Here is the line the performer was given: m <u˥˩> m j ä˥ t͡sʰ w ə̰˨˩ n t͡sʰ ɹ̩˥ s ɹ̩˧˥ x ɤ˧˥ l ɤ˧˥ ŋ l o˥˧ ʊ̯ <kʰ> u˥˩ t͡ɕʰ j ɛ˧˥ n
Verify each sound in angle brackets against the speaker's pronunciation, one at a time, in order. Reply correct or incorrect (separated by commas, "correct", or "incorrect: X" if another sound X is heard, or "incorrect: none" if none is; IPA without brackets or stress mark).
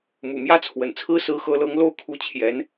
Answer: incorrect: ṵ˨˩, correct